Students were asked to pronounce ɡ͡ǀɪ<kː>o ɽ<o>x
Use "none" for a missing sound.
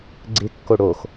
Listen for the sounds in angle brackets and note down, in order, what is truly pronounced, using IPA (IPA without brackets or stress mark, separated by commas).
kː, o